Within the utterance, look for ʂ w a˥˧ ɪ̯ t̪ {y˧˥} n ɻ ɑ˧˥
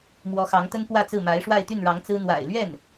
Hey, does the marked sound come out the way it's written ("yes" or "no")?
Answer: no